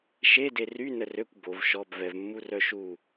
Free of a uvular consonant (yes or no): yes